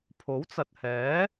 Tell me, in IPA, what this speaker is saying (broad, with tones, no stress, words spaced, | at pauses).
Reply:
pʰo˨˥wt͡sɐ˨t̚hɛː˨˥